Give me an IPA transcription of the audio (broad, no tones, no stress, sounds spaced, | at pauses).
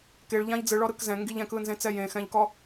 k e ɭ ʎ ã ʎ d͡z ɯ ɭ ɔ ɾ ɯ k z ɛ̃ ŋ ɡ i ʎ ɛ̃ k ɯ n z ẽ t͡s ɛ j ẽ x ɛ̃ ʎ k ɔ